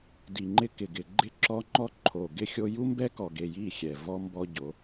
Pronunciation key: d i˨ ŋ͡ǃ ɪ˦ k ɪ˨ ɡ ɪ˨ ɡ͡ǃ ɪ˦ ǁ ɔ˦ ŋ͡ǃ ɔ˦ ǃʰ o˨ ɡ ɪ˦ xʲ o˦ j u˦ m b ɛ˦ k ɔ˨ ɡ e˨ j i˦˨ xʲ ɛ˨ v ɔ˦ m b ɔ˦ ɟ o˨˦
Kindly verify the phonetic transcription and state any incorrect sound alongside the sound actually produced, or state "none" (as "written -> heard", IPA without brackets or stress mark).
none